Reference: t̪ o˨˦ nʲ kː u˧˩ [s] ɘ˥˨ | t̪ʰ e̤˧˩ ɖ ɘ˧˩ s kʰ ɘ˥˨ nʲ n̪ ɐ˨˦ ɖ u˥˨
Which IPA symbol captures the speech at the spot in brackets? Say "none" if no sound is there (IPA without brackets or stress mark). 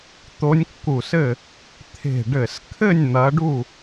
s